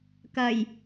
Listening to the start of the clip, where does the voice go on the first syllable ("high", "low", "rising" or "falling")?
low